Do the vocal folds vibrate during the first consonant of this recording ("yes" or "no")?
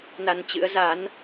yes